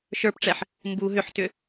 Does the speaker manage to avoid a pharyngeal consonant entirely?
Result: no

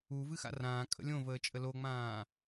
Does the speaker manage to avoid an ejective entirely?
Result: no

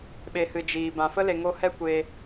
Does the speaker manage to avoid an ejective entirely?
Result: yes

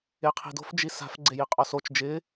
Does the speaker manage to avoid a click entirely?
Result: no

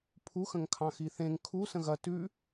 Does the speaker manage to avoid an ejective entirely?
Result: yes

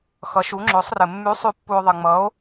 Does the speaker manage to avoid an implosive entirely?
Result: yes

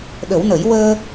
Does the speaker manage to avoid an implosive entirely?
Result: no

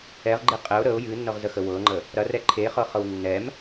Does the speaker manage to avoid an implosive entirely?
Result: yes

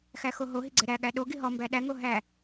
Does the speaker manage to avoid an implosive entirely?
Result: no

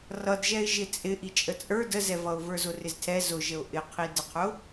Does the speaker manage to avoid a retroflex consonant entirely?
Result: yes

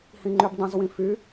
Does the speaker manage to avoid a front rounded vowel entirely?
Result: no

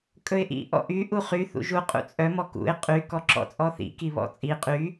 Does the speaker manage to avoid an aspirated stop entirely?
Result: yes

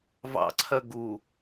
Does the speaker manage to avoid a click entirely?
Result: no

